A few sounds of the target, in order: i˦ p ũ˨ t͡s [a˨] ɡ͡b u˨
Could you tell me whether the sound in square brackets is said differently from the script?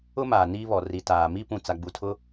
no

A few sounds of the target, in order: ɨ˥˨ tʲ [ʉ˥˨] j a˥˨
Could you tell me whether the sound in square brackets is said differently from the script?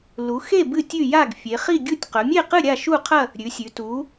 no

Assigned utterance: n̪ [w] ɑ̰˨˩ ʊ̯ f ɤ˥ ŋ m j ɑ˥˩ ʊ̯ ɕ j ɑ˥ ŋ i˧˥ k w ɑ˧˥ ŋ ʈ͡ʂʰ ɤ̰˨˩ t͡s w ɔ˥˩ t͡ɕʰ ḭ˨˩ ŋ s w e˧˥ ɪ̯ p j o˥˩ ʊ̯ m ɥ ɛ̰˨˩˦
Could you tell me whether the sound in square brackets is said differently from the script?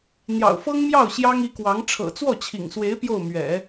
yes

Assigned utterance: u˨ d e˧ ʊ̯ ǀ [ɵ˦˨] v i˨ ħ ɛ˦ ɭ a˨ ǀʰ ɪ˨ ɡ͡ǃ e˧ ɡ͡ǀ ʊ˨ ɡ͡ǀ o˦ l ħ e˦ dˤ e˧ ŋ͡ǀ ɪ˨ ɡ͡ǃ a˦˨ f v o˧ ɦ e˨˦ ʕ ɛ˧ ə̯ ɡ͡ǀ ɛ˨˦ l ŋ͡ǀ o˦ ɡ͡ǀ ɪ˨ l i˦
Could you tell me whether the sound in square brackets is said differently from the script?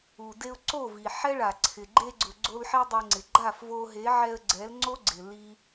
yes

